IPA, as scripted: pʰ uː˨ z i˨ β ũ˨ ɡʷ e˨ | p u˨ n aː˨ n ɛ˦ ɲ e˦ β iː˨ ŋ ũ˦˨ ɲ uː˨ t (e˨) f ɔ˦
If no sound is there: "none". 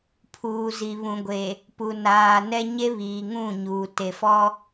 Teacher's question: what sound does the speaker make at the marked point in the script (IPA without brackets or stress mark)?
e˨